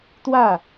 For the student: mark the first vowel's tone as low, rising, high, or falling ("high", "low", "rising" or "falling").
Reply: falling